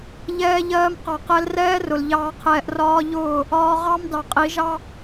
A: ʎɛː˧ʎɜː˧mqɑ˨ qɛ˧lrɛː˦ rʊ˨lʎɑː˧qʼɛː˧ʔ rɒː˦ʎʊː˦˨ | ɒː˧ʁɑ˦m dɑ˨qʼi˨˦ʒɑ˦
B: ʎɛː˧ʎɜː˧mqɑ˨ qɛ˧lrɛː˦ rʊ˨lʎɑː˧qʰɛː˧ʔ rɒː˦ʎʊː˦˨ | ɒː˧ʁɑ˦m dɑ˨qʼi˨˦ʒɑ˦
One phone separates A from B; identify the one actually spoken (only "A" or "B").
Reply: B